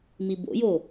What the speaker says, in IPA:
m i b o̰ j o

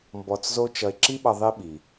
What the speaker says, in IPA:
m b ɔ˧ t͡s z o˥ t͡ʃ ʌ˧ e̯ ǁ i˥ ɓ ʌ˧ ðˤ i˥ ɓ i˩

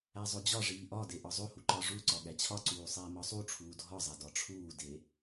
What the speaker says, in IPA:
æ zˤ o d͡ʑ ɒ ʐ iː ʔ ɒ d e ʔ ɒ zˤ o h u ǃ ɒ ʐ u ǀ ɒ ɠ æ t͡ɕʰ ɒ ǀ uː sˤ iː m ɒ sˤ u ʈ͡ʂʰ uː dʱ ɒ zˤ æ d ɒ ʈ͡ʂʰ uː d e

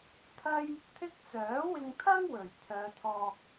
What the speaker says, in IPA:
t̪ʰ ɐ˥ j | t̪ʰ ɪ˥ k̚ t͡s œː˨˥ w ɪ˧ ŋ t̪ʰ ɐ˥ ŋ w ɵ˨˩ ɥ t̪ʰ œː˨˧ t̪ʰ ɔː˧ k̚

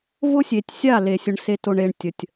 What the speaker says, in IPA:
v ʊ˦ sʲ e˨ tʲ sʲ a˦˨ l e˨ sʲ ʊ˨ ɳ s e˨ t o˨ ɳ e˨ ɳ tʲ ə˨ tʲ

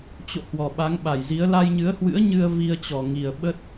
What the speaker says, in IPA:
t͡ɕ o̰˧˨ h w ɔ˨˩ ɓ a˨˦ ŋ ɓ a˧˩ j z i˨˦ ə̯ l a˧ j ɲ ɨ˨˦ ə̯ h w ɨ̰˧˥ ə̯ ɲ ɨ˧ ə̯ v i˧ ə̯ t͡ɕ ɔ˨˩ ŋ i˨˩ ə̯ ɓ ə˦˥ t̚

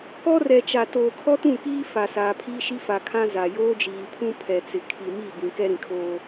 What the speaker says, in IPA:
k ɔ˦ r ɛ˨ t͡ʃ a˨ t oː˨ kʰ ɔ˦ t ũ˦˨ k iː˦ f a˨ s aː˨ pʰ iː˦ ʃ i˦ f a˨ kʰ ã˦ z a˨ j oː˦ d͡ʒ iː˨ pʰ ũ˦ pʰ ɛ˨ t͡s ɪ˨ kʰ i˨ m i˦˨ b ĩ˨ k ɛ˦ ɾ ĩ˨ kʰ oː˦

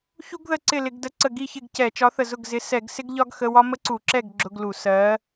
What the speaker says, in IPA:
ç u˥ ɡ ð ə˥˩ ǀ ɪ˥˩ l ɪ˧˩˧ ɡ d ə˨˥ ǀ ə˧˩ ɡ i˥˩ ç ɪ˥˩ ɡ c ɛ˧˩˧ t͡ʃ ɒ˨˥ θ ə˧˩ z ʊ˥˩ ɡ z ɪ˨˥ s ɛ˧˩˧ ɡ s ɪ˥ ɡ ʎ ɒ˥ ɡ x ə˧˥˧ w ɒ˥ m ə˥ ǀ u˧˩˧ ǁ ɛ˥˩ ɡ ɡ͡ǁ ʊ˧˥˧ ɡ l u˧˩˧ s ɜ˨˥

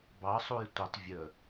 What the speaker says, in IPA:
b ɑ sˤ u j tʷ ə tˤ vʲ ə

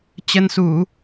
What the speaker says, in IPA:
t͡ɕ ə˧ n s u˧˩˨

